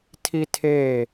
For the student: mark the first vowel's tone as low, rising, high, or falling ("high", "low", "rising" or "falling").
high